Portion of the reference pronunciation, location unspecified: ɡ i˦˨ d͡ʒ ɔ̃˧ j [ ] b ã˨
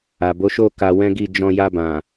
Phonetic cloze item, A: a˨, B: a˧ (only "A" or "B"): B